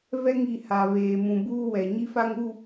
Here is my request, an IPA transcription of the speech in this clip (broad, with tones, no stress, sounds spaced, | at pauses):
v ɛ˦ ŋ i˨ h a˨ β eː˨ m ũ˨ b uː˦ w ɛ˨ ɲ i˦ f a˦ ŋ u˦˨